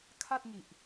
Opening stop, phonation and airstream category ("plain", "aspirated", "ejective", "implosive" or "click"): aspirated